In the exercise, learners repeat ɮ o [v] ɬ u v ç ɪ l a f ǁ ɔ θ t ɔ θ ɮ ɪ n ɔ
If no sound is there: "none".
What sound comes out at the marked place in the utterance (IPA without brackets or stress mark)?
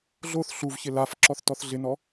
θ